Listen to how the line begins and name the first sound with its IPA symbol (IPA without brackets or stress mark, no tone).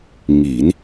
ŋ